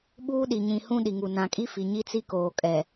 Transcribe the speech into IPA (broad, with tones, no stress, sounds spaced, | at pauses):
ɓ uː˦ ɗ i˨ ɲ ĩ˨ h ũ˦ ɗ i˨ ŋ u˨ n ã˨ kʼ i˦ f i˨ ɲ i˦ t͡s i˦ k oː˨ kʼ ɛ˨